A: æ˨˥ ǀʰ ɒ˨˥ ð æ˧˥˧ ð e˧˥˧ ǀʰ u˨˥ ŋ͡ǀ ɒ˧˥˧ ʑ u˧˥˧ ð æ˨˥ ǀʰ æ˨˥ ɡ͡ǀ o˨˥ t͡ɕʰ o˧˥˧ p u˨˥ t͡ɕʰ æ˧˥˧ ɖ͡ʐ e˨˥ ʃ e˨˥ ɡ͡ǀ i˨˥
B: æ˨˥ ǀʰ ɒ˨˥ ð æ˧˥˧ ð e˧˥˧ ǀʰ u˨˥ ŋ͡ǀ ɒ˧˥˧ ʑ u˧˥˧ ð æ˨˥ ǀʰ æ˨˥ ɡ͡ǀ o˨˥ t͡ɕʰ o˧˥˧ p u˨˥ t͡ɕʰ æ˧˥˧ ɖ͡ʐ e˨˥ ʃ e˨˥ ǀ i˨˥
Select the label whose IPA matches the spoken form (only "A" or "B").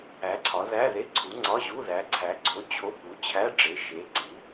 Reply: B